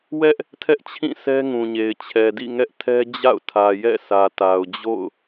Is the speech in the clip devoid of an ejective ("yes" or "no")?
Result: yes